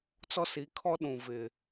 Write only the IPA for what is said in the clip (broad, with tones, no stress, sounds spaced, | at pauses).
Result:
t͡s ɔ˦ s i˨˦ kʰ ɔ˦ ɗ ũ˨ v ɪ˨